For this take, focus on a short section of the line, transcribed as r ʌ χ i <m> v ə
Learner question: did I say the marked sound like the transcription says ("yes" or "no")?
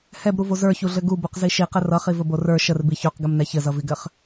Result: no